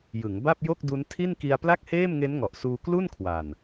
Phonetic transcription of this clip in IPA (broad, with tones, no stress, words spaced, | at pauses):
jɯ˩˦ŋ ba˥˩p̚jo˥˩k̚du˦˥n tʰi˥˩nki˧a̯ pla˥˩k̚heː˥˩mŋe˦˥nŋɔ˨˩ʔ suː˧klu˥˩n kʰwa˨˩n